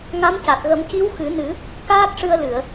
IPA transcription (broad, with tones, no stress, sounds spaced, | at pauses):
ŋ a˧˥ m c a˨˩ t̚ ɣ ə˨˩˦ m c i˧˥ w x ɨ˨˩˦ n ɨ˨˩˦ | k aː˦˥ t̚ ʂ ɨ˧ ə̯ l ɨ˨˩˨ ə̯